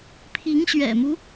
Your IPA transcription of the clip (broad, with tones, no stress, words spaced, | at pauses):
pʰi˧˥ŋɕɥɛ̰˨˩mu˦